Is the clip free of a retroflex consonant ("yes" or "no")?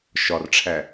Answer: no